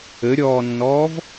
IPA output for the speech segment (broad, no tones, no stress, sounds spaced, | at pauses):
ɘ ɾʲ ɔː nː ɔː v